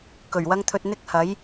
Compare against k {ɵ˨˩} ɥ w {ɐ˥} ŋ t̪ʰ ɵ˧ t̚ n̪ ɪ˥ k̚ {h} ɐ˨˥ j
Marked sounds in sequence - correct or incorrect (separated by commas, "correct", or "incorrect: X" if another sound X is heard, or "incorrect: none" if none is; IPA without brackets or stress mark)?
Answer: correct, correct, correct